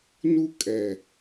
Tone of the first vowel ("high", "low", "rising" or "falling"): high